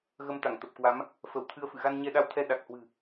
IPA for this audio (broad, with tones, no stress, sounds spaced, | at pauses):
ɣ ə˧ m t̪ a˧˩ ŋ t̪ ə˨˩ p̚ k w a˨˦ m | f ə˧˩ w t̪ʰ ɨ˧ ə̯ f ɨ̰˧˨ ɣ a˧ n ɲ ɛ˧ ɗ a˧ w t̪ʰ ɛ˧ ɗ a˨˩ k̚ h w ɨ̤˨˩